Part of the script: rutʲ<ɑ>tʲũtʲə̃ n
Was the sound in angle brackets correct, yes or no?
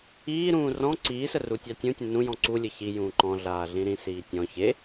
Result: yes